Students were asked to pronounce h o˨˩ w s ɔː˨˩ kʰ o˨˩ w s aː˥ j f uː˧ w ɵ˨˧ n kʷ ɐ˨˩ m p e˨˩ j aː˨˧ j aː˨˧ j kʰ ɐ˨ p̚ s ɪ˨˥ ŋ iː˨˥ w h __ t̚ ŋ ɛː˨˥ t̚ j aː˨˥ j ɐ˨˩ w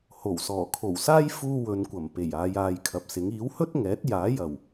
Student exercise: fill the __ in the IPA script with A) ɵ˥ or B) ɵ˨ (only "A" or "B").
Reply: A